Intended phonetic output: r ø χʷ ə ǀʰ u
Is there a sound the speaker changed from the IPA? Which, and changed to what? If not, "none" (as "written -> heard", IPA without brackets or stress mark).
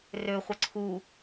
none